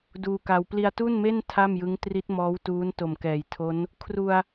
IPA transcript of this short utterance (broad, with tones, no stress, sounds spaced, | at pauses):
d uː˧ k a˧ w p l i˧ a̯ t u˥˩ n m e˥˩ n tʰ a˥˩ m j ɯ˦˥ ŋ t r i˦˥ t̚ m ɔː˦˥ w t uː˦˥ n t o˨˩ m k ɛː˨˩ j tʰ o˦˥ n | kʰ r u˧ a̯